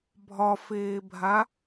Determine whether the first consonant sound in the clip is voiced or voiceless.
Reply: voiced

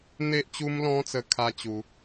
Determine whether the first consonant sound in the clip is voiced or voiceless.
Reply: voiced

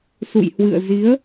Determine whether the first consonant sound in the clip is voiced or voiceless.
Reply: voiceless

